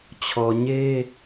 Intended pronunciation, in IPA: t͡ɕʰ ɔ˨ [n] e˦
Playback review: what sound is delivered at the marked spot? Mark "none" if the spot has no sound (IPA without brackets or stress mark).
ɲ